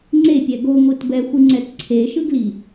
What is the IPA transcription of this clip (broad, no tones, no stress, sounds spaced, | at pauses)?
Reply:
ŋ͡ǀ e pʲ ɛ ɡ o ŋʷ ɯ t b ɛ xʷ ɯ ŋ͡ǀ ɛ t ǀʰ e ʃ ɯ ɡ l i